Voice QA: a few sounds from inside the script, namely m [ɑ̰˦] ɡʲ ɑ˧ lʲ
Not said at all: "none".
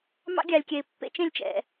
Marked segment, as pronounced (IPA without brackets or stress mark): ɑ̰˦